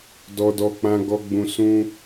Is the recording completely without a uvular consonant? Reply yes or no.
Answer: yes